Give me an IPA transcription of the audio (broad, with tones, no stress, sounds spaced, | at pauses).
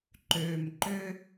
ǃ øː˨ m ǃ ø˧